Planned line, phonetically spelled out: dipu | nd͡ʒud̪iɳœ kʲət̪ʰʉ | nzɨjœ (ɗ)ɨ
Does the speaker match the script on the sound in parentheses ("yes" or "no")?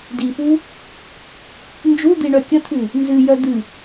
no